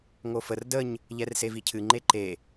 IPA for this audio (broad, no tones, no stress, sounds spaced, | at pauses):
ŋ o f ə r d ə ɲ | ʎ ɛ r s e v i cʰ ɨ ŋ͡ǃ e ǃ e